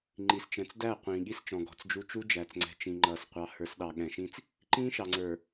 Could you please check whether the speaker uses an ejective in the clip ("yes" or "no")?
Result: no